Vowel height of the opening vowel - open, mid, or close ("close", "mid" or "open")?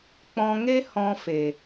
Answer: mid